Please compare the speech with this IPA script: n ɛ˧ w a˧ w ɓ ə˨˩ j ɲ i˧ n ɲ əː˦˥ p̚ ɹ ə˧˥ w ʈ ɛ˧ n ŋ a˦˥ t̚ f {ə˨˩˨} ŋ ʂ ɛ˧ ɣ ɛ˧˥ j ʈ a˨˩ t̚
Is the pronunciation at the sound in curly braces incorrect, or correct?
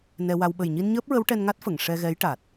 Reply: correct